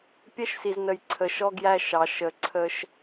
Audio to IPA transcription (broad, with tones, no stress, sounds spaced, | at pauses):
pʲ ɛ˦ ʃ s i˨ z n ə˨ j ǀʰ ə˨ ʃ ɔ˦ ɡ j æ˦ ʃ ɑ˨ ʃ ə˨ ǀʰ ə˦ ʃ